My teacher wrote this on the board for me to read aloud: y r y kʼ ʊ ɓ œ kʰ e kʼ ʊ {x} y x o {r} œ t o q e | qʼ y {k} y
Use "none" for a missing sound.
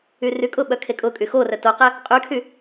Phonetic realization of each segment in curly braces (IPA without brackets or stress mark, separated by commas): kʼ, r, kʰ